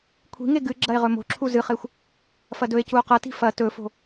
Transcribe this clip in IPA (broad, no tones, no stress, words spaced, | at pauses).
kʷʰi̤ŋe ɡɨ ɡ͡ǁɐe̯ʁɵmo̤ǁʰu zɨχexʷ | fɐdɵe̯cuo̯ qɐti̤ fɐ tɵfo̤